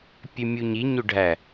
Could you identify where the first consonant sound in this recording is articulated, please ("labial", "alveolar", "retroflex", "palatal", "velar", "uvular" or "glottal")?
labial